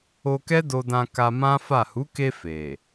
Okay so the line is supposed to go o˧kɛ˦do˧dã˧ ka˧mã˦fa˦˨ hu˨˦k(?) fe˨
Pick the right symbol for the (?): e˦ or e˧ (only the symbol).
e˧